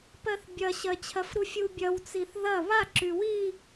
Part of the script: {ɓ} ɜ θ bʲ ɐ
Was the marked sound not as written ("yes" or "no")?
yes